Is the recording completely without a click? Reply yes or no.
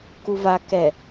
yes